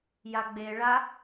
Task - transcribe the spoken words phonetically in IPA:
j a ɡ͡b e ɭ a

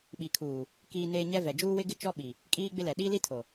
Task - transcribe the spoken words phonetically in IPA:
ɓ i˨ kʰ uː˨ | k iː˨ n eː˨ ɲ ɛ˦ v ɛ˨ d͡ʒ uː˦ w ɪ˦ ɡ ɪ˦ t͡ʃ ɔ˦ ɓ i˨ | kʼ iː˦ ɡ͡b ɪ˦ l ɛ˨ ɗ i˦ l i˦ tʰ o˨

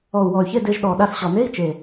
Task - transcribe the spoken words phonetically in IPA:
ɔ˨˩ u̯ w ɔ˨˩ y̯ ç e˧˥˧ d e˧ ʒ ɗ ɔ˨˩ ɗ a˧ s ɕ ɔ˨˩ n e˧˥˧ i̯ t͡ʃ e˨˩

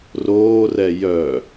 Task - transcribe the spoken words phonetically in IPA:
r oː r ɛ j œ

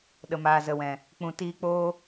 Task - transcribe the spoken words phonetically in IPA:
ɗ ə˨ m aː˨ z ə˨ w ɛ̃˨ | k͡p ũ˨ t iː˧ k͡p oː˦

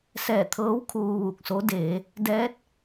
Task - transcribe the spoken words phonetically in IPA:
s ɛː˧˩ t̪ʰ ɤː˧˥ w kʰ uː˧ ʋ uː˧˩ k̚ s o˧˥ d eː˩˧ | d ɛː˧˥ t̚

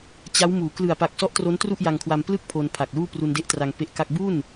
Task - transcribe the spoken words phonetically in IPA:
t͡ɕ a˦˥ w m uː˩˦ k l ɯ˨˩ a̯ p a˨˩ k̚ s ɔ˦˥ ʔ t r o˦˥ n t r u˥˩ ʔ j a˧ ŋ kʰ w a˧ m p l ɯ˥˩ k̚ pʰ o˧ n pʰ a˨˩ k̚ l uː˥˩ p r u˧ n d e˦˥ ʔ t r a˧ ŋ p e˦˥ ʔ k a˥˩ k̚ b u˥˩ n

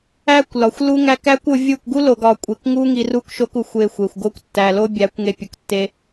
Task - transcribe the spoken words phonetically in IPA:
æ˦ kʷ l ɒ˨ xʷ l u˦ ŋ æ˦ k æ˦ kʷ o˧ vʲ u˦˨ k ɡ u˦ l o˨ ɡ ɒ˨ kʷʼ e˨ k ŋ u˦ ŋ i˧ r u˦ k ʃ o˦ k u˨ xʷ e˧ xʷ e˨ xʷ ɡ o˦ kʷ tː æ˨ l o˦ bʲ æ˨˦ kʷ ŋ e˧ pʲ u˨ k tː e˦

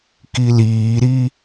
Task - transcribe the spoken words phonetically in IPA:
k i l iː ɾ i

